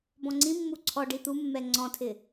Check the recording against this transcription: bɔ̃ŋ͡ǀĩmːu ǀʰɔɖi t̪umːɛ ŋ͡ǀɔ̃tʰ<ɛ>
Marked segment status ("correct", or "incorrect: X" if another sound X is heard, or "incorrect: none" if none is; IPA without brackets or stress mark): incorrect: ɪ